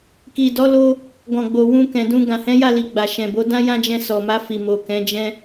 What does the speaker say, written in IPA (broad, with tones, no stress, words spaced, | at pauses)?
ki˨dɔ˨˦lo˧ | ɡɔ̃˨ɡ͡bo˨ wũ˧ kɛ̃˨dũ˧ ɡã˨hɛ̃˨˦ja˦˨li˨ ɡ͡ba˨ʃɛ̃˨bo˨˦ dã˦jã˦d͡ʒɛ̃˧ sɔ˨ma˧fi˨mo˨ kɛ̃˨˦d͡ʒɛ̃˦